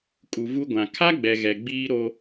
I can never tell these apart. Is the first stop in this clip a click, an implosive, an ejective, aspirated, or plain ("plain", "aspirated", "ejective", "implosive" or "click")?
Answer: ejective